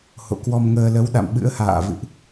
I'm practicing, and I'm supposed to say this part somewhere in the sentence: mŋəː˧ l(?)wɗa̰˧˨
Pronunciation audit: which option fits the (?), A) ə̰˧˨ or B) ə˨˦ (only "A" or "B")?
B